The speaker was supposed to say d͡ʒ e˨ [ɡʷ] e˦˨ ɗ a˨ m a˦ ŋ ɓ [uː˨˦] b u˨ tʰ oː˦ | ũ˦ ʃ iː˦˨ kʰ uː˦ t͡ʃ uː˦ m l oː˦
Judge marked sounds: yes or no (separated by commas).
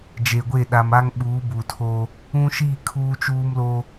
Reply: yes, yes